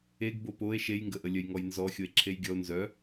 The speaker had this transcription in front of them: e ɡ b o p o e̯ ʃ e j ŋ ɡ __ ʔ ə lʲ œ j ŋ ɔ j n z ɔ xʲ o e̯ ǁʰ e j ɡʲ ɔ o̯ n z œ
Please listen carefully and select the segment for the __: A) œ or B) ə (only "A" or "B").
B